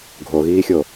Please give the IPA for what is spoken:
ɡʱ o ɣ iː xʲ o

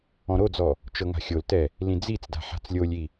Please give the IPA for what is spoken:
ɔ̃ ɾ o d͡z ɔ | t͡ʃ ɤ ŋ a̤ xʲ o l t ɛ | l ĩ d͡z i t͡s d a̤ ħ a̤ t͡s lʲ o lʲ i

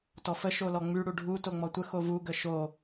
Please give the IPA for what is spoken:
t ɔ f ə ʃ o l ɔ ŋ͡m y ɽ u ɖʱ u t o ŋ͡m ɔ tʷ ə x o v u ɡ ə ʃ o

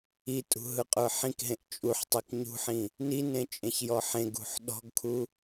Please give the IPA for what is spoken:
i tʼ ṳ ɦ ɯ qʼ ə˞ ħ ĩ k ɦ ẽ ʔ t͡ʃʼ u ħ tˤ i k ɲ ṳ ħ ĩ | n i n ẽ t͡ʃʼ ẽ ç j ɔ ħ ẽ ɡ ṳ ħ ɗ ɔ̤ ɡ kʰ u

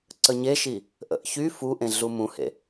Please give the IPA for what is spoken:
ǀ ə ɲ e ʃ i | ʔ ə̰ ʔ ç y f u ʔ ẽ ɮ u m ũ h ḛ

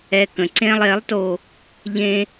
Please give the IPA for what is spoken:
ɛ˧ k ə̃˩ ǀ ẽ˥ lˠ e˩˥ lˠ t o˧ | ʎ ẽ˧

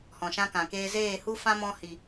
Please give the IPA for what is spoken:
h ɔ̃˨ ʃ ã˦ k ã˨ k eː˦ z eː˦˨ h u˦ f ã˦ m ɔ̃˧ h i˨

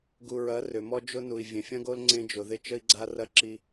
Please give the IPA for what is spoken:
ɡ u˨ ɹ ɐ˨˦ r ʏ˨ m ɔ˦ d͡ʒ ʊ˦ n u˨ i̯ vʲ ẽ˨ fʲ ɐ̃˦ ɡ o˦ l ŋ͡ǀ ẽ˦ d͡ʒ ʊ˨ ð ɪ˦ t͡ʃ ə˦ i̯ ɡ͡ǀ a˦ r ɐ˦ ǁ i˦

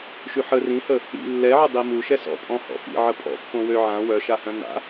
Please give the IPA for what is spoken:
ʃ y ħ ə r ĩ h ə | ḭ lː ɛ ʕ ə dˤ i m u ʃ ɛ s ɔ̰ pʼ ɔ̃ h ɔ̰ f ḭ ʕ ə pʼ ɔ̰ pː õ w ø ʕ ã w œ ʃ a h œ̃ n a̰

